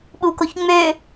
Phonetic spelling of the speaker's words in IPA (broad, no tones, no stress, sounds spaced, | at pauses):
ɓ u k o ç ŋ͡m ø